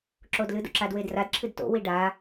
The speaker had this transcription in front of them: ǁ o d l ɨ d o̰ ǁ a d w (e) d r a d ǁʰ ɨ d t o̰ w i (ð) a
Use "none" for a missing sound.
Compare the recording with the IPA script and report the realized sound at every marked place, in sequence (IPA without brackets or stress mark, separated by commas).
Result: e, ɖ